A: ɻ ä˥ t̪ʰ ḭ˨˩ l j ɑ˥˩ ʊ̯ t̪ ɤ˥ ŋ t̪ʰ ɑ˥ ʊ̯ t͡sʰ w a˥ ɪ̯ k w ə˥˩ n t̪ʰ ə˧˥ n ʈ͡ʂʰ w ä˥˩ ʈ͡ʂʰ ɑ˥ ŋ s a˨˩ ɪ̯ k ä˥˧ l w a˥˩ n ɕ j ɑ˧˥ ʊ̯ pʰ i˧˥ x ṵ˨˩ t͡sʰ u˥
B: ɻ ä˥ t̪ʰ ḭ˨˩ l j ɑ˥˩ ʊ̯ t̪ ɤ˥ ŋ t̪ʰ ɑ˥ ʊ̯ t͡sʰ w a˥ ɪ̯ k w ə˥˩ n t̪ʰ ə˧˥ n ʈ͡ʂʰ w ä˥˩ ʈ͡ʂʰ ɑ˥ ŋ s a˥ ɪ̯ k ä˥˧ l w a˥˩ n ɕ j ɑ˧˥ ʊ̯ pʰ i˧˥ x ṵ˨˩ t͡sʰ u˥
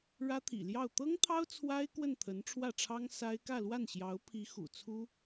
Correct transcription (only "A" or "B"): B